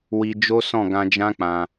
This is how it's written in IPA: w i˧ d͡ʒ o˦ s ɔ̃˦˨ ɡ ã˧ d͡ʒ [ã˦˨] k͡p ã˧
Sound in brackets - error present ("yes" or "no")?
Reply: yes